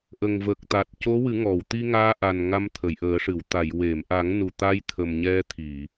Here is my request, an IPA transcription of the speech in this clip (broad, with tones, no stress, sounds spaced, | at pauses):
ʔ ə˨˩ ŋ v ə˨˩ k̚ t̪ a˨˩ t̚ c o˧˥ w ɨ˨˩˦ ŋ ɔ˨˩˨ w t̪ i˧ ŋ aː˧ ʔ a˨˩ n ŋ a˧ m t̪ʰ ə˨˩˨ j ʔ əː˨˩˦ ʂ ɨ˨˩˨ w t̪ a˨˩˨ j w e˨˩˨ m ʔ a˨˩˦ ŋ n u˨˩ t̪ a˧ j t̪ʰ ə˨˩ m ɲ ɛ˧ t̪ʰ i˨˩˨